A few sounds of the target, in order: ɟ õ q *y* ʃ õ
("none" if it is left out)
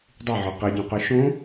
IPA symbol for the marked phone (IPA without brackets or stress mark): y